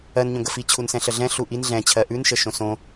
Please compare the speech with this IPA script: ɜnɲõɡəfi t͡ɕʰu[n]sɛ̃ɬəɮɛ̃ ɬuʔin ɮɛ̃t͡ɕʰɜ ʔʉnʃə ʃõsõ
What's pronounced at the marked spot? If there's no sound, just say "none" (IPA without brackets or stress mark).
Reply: n